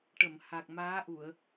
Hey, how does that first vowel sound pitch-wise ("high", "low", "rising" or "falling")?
low